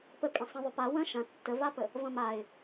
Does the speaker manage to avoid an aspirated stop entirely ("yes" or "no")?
yes